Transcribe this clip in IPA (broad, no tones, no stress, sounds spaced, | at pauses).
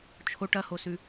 t͡ʃʰ o ʈ ɐ h o s ʉ